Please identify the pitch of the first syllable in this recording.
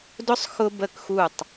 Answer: high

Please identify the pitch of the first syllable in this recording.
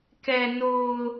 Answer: low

